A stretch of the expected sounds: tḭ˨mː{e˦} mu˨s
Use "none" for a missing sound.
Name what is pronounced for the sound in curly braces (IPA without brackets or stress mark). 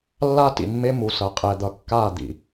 e˦